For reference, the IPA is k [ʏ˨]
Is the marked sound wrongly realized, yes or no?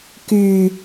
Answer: yes